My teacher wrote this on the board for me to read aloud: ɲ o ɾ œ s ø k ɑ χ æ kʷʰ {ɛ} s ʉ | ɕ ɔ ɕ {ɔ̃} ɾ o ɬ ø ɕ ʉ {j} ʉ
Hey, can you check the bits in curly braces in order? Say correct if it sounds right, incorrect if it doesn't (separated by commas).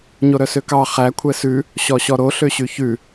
correct, incorrect, incorrect